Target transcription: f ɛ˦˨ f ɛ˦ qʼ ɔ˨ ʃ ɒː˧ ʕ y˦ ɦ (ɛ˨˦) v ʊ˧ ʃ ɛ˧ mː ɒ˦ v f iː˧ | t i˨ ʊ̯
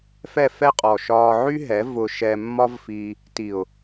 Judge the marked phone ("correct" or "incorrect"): correct